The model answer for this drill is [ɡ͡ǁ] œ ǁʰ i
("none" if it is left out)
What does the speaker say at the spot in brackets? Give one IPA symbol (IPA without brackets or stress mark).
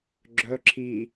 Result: ɡ͡ǁ